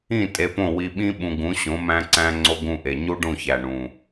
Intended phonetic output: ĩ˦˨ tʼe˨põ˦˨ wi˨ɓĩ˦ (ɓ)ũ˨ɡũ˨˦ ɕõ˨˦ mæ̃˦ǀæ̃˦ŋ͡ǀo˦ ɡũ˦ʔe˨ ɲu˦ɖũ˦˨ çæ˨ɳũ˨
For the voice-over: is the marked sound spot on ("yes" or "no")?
yes